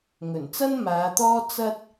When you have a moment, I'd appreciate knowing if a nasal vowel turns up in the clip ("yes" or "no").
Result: no